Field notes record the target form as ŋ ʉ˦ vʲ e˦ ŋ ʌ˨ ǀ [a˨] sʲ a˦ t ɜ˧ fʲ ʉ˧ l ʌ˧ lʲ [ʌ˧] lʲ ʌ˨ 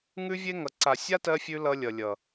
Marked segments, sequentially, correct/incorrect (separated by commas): correct, incorrect